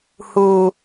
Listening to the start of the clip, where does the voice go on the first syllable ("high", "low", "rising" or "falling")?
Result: low